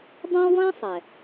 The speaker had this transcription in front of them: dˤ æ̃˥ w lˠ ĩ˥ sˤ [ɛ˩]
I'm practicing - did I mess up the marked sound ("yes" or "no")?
no